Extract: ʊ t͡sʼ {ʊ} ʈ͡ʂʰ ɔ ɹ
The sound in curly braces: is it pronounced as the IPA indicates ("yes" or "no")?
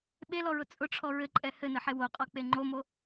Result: yes